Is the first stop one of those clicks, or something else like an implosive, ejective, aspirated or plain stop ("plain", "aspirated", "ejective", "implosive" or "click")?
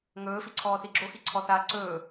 click